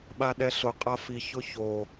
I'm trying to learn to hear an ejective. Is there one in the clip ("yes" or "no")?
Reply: yes